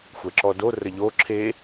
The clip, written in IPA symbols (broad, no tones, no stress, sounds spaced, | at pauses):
xʷ ɛ ǁ ɔ d o r ə ʎ o ǁʰ e